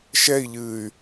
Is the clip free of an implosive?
yes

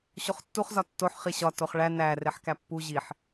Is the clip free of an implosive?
yes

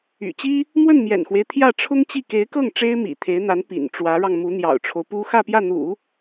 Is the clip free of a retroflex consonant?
no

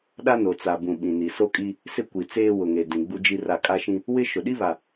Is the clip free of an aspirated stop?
yes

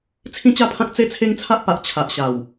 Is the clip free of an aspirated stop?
no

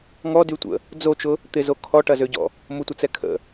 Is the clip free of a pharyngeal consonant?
yes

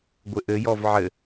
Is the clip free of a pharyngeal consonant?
no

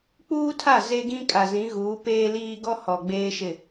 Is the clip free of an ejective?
no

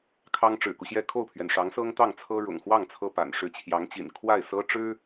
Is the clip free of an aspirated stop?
no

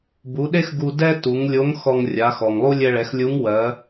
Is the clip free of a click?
yes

